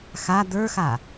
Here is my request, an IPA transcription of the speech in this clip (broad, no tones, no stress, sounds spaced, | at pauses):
x a d̪ ə˞ x a